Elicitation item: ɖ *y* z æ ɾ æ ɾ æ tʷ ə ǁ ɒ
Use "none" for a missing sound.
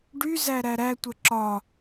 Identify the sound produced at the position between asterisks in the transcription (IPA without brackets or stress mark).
y